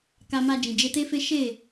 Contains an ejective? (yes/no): no